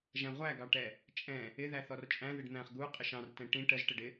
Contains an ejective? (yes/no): yes